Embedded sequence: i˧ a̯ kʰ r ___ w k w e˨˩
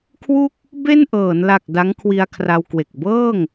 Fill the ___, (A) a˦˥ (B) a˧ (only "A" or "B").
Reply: B